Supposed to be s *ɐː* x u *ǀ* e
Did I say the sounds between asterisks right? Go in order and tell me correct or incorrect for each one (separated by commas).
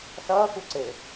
correct, correct